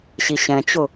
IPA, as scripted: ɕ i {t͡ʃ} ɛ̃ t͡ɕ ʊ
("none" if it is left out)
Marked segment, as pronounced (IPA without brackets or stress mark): ɕ